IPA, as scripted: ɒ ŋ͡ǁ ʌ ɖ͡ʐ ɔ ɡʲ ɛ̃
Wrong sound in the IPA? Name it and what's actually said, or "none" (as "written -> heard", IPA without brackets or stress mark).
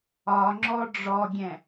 ʌ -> ɔ